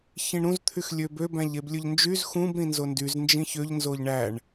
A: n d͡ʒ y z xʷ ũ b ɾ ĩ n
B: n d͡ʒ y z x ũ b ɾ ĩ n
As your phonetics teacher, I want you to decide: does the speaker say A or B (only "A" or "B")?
B